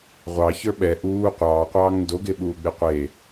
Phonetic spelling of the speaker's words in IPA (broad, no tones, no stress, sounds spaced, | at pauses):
ʁʷ ɑ ç ə˞ ɓ ɛ ʔ uː qʷ ɑː qʷ ɑː ŋ n d o ɡ e ɓ uː ɡ͡b e qʷ e